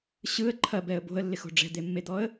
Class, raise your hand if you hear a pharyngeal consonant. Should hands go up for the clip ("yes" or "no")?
no